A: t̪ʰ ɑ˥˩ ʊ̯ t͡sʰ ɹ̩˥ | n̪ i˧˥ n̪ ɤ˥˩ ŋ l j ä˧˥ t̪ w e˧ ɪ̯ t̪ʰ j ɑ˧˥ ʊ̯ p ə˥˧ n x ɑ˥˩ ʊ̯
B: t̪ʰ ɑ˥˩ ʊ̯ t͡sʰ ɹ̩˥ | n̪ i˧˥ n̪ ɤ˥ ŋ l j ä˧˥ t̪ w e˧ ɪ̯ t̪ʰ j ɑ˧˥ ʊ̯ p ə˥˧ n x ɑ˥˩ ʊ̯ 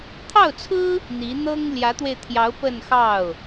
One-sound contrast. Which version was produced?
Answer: B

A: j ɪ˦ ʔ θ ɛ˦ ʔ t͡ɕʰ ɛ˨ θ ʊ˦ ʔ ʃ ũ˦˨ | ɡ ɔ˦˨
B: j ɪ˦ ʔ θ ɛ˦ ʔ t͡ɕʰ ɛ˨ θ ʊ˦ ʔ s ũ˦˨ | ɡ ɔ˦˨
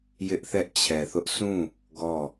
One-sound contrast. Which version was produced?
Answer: B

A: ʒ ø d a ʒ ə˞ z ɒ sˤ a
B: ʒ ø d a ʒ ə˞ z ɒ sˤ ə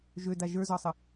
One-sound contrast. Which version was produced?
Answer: B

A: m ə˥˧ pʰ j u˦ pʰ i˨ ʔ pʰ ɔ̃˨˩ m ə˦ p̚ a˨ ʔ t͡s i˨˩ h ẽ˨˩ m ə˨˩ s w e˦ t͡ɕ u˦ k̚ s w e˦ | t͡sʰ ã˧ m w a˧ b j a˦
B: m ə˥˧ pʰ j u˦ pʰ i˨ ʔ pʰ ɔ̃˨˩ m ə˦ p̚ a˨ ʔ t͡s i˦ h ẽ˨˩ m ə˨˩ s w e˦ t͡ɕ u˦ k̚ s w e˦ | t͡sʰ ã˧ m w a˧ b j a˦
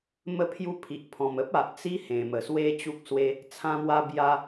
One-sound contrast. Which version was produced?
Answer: B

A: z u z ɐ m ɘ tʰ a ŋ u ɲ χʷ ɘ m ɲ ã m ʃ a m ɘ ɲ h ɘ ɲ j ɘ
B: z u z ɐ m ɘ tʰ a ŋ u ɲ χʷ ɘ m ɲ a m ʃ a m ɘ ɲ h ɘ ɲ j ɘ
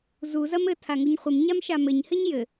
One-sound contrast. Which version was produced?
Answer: B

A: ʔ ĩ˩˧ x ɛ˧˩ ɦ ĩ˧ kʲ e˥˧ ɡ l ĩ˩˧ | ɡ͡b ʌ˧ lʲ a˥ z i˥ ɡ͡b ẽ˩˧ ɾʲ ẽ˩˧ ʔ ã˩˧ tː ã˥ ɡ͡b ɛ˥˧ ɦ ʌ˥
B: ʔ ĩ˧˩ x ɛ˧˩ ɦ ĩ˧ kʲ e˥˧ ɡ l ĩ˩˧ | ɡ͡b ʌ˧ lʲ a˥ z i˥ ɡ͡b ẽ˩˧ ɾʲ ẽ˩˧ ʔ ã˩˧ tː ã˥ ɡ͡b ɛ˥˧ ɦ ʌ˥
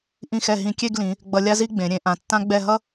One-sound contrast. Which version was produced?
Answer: B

